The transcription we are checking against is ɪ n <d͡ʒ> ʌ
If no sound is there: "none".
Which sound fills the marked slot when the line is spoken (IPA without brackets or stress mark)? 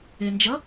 d͡ʒ